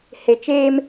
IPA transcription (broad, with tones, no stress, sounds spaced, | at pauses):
h e˨ t͡ʃ eː˦ m